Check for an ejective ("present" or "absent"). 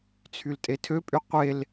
present